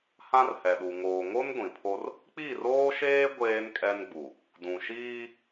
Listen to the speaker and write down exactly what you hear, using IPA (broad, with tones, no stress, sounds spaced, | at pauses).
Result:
h ã˦ r h ɛ˨ ɗ u˨ ŋ oː˨ ŋ o˦ n ɡʷ ĩ˨ pʰ o˦ r | k͡p i˦˨ r oː˦ ʃ eː˦ ɡʷ eː˦ n kʼ ɛ˦ n ɡ͡b u˨ | d ũ˨ ʃ iː˦